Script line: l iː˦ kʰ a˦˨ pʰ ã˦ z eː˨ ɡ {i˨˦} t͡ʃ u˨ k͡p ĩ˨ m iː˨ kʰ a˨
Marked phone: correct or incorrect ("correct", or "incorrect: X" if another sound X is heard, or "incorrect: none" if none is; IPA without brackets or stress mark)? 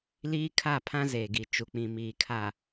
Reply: incorrect: i˨